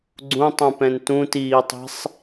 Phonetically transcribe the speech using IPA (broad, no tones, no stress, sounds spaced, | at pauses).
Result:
ɡ͡ǀ ũ tˤ ũ p ɛ̃ n t ũ t iː tˤ i̤ sˤ